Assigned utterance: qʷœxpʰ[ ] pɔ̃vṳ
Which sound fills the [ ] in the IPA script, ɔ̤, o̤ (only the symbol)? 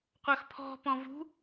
ɔ̤